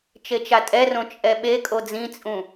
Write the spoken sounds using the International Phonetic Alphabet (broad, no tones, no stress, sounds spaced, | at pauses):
t͡ʃ e t͡ʃ a tʼ ɛ r õ t͡ʃʼ ɛ ɓ e kʼ o d͡z ĩ t͡sʼ ũ